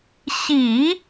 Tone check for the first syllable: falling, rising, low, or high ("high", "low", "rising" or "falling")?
low